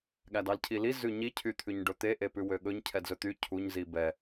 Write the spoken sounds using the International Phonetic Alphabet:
ɠ æ d ɑ l cʰ i l i z ʉ ɲ i cʰ y t̪ʰ ʉ ɲ ɖ ɵ t̪ e ʔ e p ʉ w ø ɠ ɵ ɲ cʰ ɛ d z ɵ t̪ y cʰ u ɲ z i b ɛ

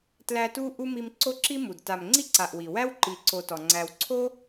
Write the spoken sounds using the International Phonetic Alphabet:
t l æ˦ t u˥ ʔ u˥ m i˦ m ǀ o˥ ǁ i˥ m u˩ d t a˨ m ŋ͡ǀ i˥ ǀ a˨ ʔ w i˩ w æ˥ w ǃ i˨ ǀ o˨ t ɔ˩ ŋ͡ǀ æ˨ w ǀʰ o˥

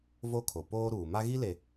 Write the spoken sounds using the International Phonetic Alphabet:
v o˦ kʰ o˨ p oː˦ ɾ uː˨ m a˦ ɣ i˦ l e˨

